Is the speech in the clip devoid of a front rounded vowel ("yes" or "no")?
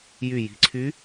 no